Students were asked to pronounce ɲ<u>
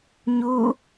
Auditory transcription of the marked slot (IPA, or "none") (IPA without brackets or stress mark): u